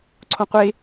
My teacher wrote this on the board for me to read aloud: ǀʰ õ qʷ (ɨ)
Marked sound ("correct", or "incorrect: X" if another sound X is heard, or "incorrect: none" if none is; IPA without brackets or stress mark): incorrect: e